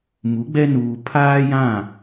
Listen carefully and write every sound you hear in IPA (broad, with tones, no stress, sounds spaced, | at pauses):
m u˨˦ ɡ͡b ɛ˦ n uː˨ pʰ aː˦ j ã˦˨